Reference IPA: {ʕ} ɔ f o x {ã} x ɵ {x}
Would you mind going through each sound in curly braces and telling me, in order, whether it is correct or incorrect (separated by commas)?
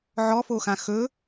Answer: correct, correct, incorrect